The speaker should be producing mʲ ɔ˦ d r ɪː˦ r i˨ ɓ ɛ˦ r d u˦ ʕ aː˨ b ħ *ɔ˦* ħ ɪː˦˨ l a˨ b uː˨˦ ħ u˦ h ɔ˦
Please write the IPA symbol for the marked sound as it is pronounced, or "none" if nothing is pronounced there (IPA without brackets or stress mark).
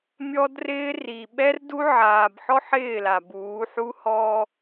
ɔ˦